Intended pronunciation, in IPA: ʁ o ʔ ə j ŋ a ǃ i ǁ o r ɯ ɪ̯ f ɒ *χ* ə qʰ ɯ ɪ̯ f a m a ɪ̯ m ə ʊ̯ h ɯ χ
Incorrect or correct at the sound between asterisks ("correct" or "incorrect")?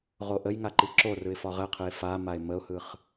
incorrect